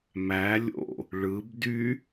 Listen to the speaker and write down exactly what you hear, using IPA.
mæ lʲo̰ | ɭɯb dy

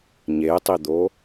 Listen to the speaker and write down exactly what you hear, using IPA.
ɲetˤid̪o

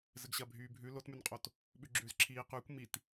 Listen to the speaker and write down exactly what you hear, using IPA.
zɘɡɕɐ bʱyːbʱʉ lotmʉnqʼot | ɓʉɡ͡ǁʉːzǁʰiː qʉːkʷ mit

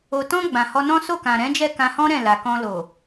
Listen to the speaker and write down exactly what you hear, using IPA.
o˨tɔ̃˧ ɡ͡bã˨hɔ˧nɔ̃˦ so˦˨kã˨ɾɛ̃˨˦d͡ʒɛ˦˨ kã˧hɔ̃˦ɾɛ̃˦˨ la˨kɔ̃˧ lo˨

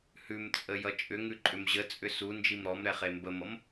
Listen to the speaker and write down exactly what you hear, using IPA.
hʉmt͡sʼə jʌt͡ʃʼʏŋʉ ǃʼʏmʑət͡sʼʏ su nd͡ʒimɾɔmɾɛ χembəmʌm

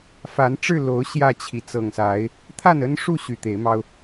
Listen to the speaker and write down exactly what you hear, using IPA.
fa˨˦nʈ͡ʂɻ̩˥˨lo˨˦ʊ̯ ɕjä˥˨t͡ɕʰi˨˦ t͡sɤ˨˩ŋsa˨˦ɪ̯ | t̪ʰa˥˨nə˦nʂu˥˨ ɕy˨˩t̪e˨˦ɪ̯mɑ˦ʊ̯

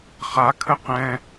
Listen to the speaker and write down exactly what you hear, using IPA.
χakʰə qɛ̃

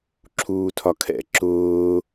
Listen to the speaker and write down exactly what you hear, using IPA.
ǁʰuːtʰɒkʰɛ̰ ǁʊː

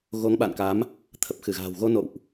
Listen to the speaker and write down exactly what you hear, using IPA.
ɣo˨˦ŋɓa̰˧˨nka˨˦m | t̪ʰə˨˩p̚xɨ˧˩ɣa̤ː˨˩wɣo˧ no̰˧˨wʔ

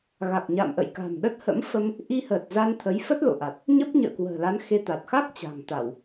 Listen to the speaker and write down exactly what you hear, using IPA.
ɣa˨˩k̚ɲa̰˧˨mʔə̰˧˨j ka̤˨˩mɗə˦˥t̚ hə̰˧˥mfə˧m | ʔi˧həː˨˩t̚ za˧nt̪ʰə˨˦j fə˦˥t̚lo̰˧˨ʔa˨˩t̚ | ɲə˦˥p̚ɲə̰ː˧˨kwə̤ː˨˩la˨˦n xe˧t̪a˨˩t̚ xa˦˥k̚ t͡ɕa̤˨˩ŋt̪a˧˩˨w

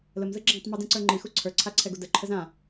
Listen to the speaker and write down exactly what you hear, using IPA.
ləmzɯ ɡ͡ǁãtˤmɯdĩǀə˞ ŋ͡ǃixu ǀʰə˞ǀʰaǀʰɛɡu dəǃʰəz ã

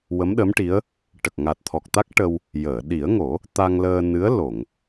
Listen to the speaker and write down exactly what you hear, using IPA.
wə˧˥mɗə˧˥mʈi˧˥ə̯ | ʈə˨˩k̚ŋa˨˩t̚t̪ʰɔ˨˩k̚t̪a˦˥k̚ ʈə˧w | jəː˨˩˨ ɗi˨˩˦ə̯ŋo˨˩˦ | t̪a˧ŋləː˧nɨ˧˥ə̯ lo˨˩˨ŋ

